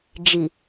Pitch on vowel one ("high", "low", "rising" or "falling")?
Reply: low